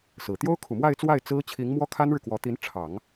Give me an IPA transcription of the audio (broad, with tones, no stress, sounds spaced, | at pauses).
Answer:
s ɹ̩˨˩ t̪ j o˥ ʊ̯ kʰ u˨˩ m w a˥˧ ɪ̯ t͡s w a˥˩ ɪ̯ t͡s ɹ̩˥ t͡ɕʰ i˧˥ ŋ m w ɔ˥ kʰ a˥ n ɻ ɻ̩˨ k w ɔ˧˥ t̪ i˧˥ n ʈ͡ʂʰ ɑ˨˩˦ ŋ